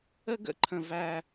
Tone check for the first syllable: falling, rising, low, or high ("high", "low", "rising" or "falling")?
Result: high